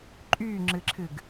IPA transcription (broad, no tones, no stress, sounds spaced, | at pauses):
ǃʼ yː ŋ͡ǁ ɨ ǁʰ ɨ ɡ